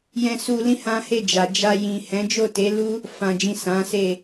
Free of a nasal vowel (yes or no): no